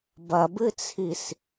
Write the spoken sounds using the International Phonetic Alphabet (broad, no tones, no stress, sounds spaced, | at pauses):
b ɐ b ɨ t͡sʰ i s